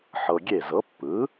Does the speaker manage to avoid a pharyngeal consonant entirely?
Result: no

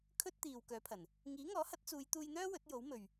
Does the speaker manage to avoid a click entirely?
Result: yes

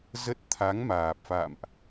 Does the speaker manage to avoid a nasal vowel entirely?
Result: yes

